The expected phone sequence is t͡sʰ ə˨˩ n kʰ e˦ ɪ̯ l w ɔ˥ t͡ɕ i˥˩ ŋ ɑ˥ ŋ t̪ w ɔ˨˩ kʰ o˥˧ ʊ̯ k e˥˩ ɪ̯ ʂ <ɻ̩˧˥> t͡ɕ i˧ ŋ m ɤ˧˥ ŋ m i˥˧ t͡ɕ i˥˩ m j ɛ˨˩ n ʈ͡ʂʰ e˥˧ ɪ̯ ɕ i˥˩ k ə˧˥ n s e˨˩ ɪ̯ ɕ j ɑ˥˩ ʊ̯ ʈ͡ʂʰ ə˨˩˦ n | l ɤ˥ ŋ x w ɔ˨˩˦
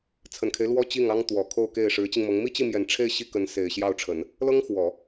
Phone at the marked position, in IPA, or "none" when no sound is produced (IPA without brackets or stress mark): ɻ̩˧˥